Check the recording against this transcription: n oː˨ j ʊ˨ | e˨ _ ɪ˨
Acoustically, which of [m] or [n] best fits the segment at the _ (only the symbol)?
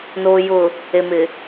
m